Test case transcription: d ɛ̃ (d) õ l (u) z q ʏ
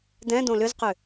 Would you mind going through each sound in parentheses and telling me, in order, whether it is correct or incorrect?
correct, incorrect

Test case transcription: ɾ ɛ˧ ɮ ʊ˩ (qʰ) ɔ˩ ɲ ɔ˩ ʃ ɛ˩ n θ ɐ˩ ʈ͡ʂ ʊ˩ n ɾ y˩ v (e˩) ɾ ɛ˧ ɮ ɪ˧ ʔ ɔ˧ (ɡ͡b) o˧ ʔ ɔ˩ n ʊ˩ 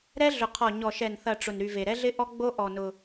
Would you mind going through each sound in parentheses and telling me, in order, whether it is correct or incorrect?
correct, correct, correct

